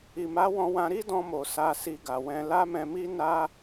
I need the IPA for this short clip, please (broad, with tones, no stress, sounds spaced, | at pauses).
i˨ m a˨˦ w ɔ̃˧ w ã˧ ɾ i˦ d ɔ̃˧ m o˨ s a˧ s i˧ ɡ a˨ w ɛ̃˧ l a˦ m ɛ̃˧ m i˦ n a˧